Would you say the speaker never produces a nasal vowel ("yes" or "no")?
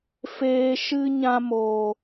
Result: no